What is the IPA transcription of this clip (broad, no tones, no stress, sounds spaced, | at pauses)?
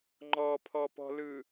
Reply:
ŋ͡ǃ ɔ pʰ ɔ p ɔ̤ l ɯ